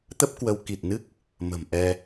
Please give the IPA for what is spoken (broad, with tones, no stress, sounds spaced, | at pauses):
t̪ ə˦˥ p̚ k w ə˨˦ w k i˨˩ t̚ n ɨ˦˥ k̚ | m ə̤˨˩ m ʔ ɛ˧